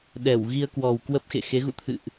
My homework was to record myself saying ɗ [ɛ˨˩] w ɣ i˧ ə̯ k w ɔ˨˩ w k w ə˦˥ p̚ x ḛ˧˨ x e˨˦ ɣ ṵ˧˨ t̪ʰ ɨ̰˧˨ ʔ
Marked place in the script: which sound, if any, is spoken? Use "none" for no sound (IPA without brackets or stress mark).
ɛ˧˩